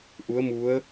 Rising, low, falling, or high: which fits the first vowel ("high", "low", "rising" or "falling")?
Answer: rising